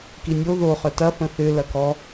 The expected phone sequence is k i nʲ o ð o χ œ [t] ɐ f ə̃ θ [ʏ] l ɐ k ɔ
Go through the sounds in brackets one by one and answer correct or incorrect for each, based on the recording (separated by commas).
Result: correct, correct